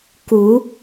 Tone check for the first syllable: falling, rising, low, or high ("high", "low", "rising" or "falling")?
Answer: rising